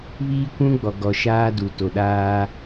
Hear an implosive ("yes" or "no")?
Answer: yes